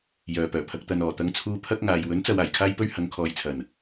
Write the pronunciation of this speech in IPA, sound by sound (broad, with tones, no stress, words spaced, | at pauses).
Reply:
jœː˨pœː˨˩ pʰɐ˨k̚t̪ɐ˨n ɔː˨˩ t̪ɐ˧ŋt͡sʰuː˧ pʰɐ˥k̚ŋaː˨j wɵ˨˥nt͡sɐ˨w aː˨˩jkʰaː˥jpɵ˥ɥ hɐ˨˧ŋkʰɔː˨jt͡sʰɐ˨˩n